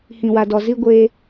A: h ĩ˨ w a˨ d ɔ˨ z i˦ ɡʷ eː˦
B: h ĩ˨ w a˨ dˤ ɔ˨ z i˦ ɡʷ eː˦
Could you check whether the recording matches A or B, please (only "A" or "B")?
A